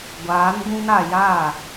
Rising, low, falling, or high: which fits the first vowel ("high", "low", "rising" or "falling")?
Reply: rising